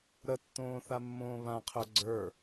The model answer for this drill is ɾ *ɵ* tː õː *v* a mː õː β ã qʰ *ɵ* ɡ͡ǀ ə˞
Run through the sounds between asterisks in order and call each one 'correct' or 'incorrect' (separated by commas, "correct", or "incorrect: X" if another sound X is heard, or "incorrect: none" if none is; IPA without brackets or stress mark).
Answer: incorrect: ə, incorrect: θ, correct